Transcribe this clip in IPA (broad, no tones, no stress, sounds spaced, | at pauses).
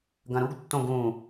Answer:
ɡ ɐ̃ ɾ u ɡ tː õ ɡ ũ